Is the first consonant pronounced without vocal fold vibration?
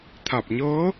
yes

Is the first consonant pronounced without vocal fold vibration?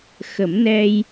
yes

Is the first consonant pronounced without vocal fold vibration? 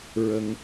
no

